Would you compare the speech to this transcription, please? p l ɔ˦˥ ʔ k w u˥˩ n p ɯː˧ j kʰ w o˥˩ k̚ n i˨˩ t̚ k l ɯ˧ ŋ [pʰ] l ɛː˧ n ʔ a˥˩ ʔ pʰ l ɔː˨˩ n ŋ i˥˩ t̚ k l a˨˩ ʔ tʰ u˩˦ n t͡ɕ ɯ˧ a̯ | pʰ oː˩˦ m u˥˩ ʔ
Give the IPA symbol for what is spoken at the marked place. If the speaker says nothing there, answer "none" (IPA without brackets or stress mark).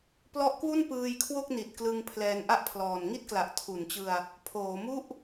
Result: pʰ